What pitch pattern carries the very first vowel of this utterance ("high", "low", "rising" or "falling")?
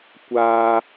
high